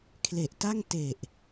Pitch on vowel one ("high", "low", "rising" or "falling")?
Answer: low